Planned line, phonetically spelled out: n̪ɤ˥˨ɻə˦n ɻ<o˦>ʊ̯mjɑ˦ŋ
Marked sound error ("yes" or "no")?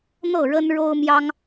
no